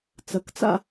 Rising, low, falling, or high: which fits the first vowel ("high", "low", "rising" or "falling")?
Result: low